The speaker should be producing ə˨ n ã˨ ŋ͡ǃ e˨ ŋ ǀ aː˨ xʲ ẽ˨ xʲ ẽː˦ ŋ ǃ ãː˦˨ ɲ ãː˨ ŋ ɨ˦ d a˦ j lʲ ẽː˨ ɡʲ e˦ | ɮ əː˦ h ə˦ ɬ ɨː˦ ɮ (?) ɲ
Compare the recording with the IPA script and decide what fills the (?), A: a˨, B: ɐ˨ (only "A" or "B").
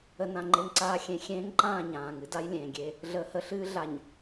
A